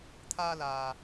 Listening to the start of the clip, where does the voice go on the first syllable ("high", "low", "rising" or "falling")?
high